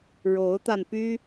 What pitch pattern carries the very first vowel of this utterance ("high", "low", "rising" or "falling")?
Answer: rising